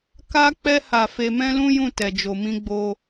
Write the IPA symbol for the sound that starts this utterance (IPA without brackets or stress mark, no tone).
k